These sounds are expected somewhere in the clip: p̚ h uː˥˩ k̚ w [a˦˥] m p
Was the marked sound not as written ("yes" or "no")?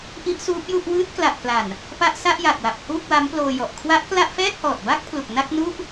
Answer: no